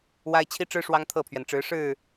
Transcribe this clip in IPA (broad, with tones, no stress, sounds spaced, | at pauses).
w a˦ ɪ̯ t͡ɕʰ i˦ ʈ͡ʂ ɻ̩˦ ʂ w ɑ˦ ŋ t̪ʰ ɤ˥˨ pʰ ɥ ɛ˩ n ʈ͡ʂ ɻ̩˨˦ ʂ ɻ̩˥˨